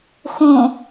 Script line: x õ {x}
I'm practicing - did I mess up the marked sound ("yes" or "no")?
yes